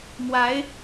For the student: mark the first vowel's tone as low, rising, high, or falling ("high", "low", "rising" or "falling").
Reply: rising